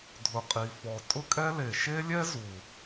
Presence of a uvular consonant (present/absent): present